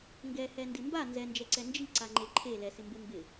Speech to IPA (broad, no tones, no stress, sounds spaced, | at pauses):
ŋ ɡ ɛ h ɛ n d ɪ m b a n z ɛ n d͡ʒ ɛ ǀ ɛ n d͡ʒ i ǀ a ŋ͡ǃ e ǃʰ e l ɛ s ɪ m b e m b ɪ